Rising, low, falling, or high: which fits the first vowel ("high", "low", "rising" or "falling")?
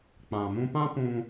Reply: low